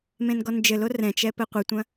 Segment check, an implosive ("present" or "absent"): absent